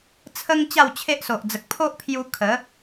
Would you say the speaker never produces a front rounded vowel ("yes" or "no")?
yes